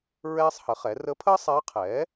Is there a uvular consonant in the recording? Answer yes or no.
yes